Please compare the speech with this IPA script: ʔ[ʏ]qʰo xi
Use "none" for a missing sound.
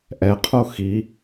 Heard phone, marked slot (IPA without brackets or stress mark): ɛ